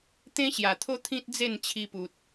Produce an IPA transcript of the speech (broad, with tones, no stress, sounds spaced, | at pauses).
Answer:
t̪ ẽ˦ ɕ j a˨˩ t̪ʰ o˦ t̪ʰ ĩ˦ t̚ d͡z e˥˧ n t͡ɕʰ i˧ p u˨ t̚